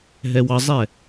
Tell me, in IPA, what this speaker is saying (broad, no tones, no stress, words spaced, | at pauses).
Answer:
ɦɛwɑzˤɛ